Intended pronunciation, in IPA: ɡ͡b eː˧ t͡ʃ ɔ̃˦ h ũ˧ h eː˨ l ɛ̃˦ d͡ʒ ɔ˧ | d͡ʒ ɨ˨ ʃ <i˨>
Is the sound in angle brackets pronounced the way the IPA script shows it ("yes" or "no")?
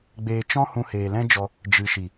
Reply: yes